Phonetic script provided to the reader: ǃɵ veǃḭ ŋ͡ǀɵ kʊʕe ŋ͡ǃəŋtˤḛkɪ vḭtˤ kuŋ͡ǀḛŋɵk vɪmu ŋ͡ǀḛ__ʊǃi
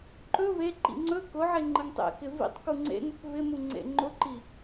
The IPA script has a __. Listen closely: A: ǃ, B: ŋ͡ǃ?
B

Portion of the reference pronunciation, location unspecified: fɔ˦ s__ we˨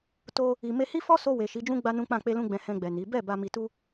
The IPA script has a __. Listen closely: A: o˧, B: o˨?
A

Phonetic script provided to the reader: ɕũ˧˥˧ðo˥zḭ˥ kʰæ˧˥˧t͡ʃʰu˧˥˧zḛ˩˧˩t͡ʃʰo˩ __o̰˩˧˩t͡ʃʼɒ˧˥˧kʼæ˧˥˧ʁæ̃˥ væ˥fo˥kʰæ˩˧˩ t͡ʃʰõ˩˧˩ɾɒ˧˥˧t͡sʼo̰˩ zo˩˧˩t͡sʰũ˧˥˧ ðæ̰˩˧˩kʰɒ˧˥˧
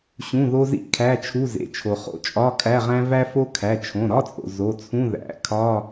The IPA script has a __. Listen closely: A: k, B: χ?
B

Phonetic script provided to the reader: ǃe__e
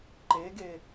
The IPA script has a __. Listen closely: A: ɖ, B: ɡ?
B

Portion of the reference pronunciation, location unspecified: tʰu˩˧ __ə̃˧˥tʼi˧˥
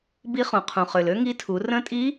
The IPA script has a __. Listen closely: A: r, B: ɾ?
A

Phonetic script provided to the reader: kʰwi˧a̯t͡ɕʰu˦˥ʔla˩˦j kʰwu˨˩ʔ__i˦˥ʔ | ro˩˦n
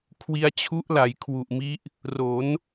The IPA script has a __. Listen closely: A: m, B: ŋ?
A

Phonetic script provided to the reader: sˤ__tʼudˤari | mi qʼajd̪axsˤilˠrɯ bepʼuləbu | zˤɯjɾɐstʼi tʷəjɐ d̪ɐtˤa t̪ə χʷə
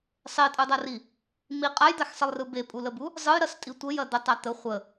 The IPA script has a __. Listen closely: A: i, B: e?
B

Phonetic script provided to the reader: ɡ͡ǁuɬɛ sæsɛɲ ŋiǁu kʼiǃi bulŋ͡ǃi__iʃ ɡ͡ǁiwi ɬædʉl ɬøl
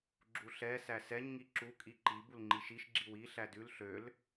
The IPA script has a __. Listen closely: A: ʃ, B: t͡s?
A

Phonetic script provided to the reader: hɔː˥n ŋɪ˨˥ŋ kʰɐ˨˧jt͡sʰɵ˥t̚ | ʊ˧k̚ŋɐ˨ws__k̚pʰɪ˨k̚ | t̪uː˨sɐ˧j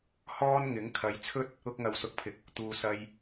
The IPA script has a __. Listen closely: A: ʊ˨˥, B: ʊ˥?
A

